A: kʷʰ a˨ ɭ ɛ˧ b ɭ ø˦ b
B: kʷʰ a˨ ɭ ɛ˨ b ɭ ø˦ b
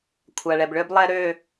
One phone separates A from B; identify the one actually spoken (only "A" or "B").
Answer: B